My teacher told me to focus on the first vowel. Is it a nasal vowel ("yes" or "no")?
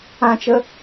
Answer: yes